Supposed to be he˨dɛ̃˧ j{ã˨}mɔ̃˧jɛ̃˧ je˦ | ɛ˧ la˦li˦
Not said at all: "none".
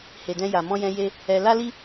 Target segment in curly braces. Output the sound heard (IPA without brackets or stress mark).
a˨